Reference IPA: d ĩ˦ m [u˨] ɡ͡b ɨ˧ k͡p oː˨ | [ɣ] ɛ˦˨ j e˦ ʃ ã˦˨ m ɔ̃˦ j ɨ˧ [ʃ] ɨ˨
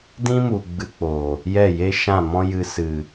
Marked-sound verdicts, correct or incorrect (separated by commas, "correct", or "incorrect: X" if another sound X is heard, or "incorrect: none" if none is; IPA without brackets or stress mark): correct, incorrect: j, incorrect: s